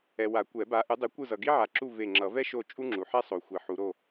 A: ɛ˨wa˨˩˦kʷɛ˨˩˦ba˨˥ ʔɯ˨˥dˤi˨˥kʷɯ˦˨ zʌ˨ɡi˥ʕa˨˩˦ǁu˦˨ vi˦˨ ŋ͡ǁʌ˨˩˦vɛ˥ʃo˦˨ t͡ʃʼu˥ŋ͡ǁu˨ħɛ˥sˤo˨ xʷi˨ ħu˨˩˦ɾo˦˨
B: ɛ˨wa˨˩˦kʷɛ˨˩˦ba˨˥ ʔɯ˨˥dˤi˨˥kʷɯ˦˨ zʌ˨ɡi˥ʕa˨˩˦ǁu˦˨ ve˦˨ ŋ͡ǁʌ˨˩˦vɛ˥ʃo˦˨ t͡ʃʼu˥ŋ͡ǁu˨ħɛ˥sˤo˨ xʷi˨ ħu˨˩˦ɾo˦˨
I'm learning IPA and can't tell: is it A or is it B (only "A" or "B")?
B